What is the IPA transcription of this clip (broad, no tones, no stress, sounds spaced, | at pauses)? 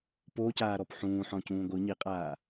p o c aː ɾ ɔ p ħ ũː ħ ɔ̃ c ũː ɡʷ ɯ ɲ i qʼ aː